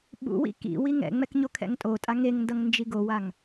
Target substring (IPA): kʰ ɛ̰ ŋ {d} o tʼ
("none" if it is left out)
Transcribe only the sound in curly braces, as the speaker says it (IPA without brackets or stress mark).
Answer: tʼ